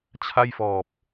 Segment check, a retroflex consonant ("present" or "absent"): absent